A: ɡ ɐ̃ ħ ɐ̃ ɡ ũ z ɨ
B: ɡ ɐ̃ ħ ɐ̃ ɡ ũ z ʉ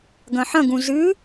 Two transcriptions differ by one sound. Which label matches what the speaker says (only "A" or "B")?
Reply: A